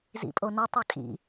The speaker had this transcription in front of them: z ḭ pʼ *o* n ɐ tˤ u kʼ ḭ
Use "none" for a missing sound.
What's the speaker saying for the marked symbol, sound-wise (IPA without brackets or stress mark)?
o